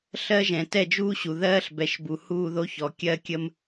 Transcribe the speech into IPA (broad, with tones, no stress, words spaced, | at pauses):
ɬɜ˦ʒɛ̃˨ tɛ˦˨d͡ʒuː˦ɕu˨ ðɜː˦ɬbɛ˨ʃbu˨ huː˦˨ðo˦çɔ˨ kʲɜ˦kʲə˦m